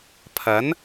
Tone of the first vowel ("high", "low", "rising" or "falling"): rising